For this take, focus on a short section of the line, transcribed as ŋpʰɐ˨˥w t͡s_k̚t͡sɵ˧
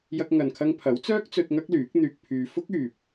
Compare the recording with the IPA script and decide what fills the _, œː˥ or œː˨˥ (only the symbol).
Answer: œː˥